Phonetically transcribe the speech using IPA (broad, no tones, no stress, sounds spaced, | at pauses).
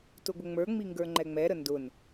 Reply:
t ʊ ɡʷ ə ŋ͡m ə˞ ŋ͡m i ŋ ɡ ə˞ ŋ͡ǃ ɛ ŋ͡m ɛ ɾ ə n d ʊ n